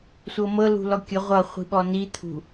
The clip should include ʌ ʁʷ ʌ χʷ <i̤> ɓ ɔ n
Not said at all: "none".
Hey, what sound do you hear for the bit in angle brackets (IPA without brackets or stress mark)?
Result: i̤